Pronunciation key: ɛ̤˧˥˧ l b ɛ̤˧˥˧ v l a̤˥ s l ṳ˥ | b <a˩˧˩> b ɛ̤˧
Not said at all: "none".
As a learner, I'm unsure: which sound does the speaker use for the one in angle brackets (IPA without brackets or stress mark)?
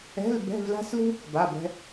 a˩˧˩